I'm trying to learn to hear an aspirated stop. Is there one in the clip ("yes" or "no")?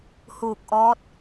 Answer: no